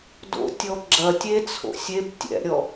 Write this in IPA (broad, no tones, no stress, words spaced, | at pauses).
do̰tʲɔ ɡ͡ǁɐ tʲet͡sʰo̰ sʲeb tʲɛ̰ɾʲɔ